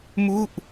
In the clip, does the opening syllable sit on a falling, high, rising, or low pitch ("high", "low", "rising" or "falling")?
falling